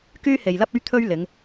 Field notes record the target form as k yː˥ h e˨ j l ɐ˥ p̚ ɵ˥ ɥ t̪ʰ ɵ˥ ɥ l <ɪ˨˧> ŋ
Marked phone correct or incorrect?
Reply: correct